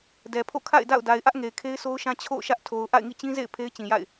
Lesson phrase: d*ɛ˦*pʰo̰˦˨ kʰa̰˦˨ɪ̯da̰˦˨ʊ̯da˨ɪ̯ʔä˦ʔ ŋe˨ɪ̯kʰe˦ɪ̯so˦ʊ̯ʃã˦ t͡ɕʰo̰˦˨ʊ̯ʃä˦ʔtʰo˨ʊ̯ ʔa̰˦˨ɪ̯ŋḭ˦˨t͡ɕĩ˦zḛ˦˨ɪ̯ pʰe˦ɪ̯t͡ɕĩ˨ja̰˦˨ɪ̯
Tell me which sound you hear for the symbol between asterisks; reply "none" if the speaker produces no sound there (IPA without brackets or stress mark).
ɛ˨